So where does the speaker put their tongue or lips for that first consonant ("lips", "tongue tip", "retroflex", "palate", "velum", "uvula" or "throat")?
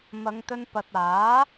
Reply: lips